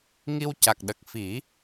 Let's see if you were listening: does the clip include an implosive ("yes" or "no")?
yes